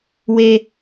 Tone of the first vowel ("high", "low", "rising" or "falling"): high